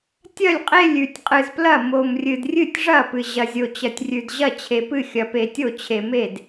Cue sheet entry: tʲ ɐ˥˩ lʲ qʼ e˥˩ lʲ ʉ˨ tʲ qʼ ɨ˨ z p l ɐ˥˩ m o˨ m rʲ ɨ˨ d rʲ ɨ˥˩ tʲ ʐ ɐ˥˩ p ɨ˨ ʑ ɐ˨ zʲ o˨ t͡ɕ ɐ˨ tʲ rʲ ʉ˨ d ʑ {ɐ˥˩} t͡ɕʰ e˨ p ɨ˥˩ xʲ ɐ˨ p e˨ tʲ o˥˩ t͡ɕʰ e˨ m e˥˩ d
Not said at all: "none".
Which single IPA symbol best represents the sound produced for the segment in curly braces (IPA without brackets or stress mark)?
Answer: ɐ˥˩